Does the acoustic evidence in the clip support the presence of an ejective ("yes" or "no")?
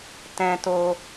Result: no